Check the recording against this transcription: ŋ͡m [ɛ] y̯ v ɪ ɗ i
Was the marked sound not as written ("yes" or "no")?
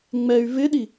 no